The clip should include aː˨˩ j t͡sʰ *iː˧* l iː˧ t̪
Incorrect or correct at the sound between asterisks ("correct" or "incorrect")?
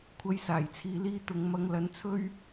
incorrect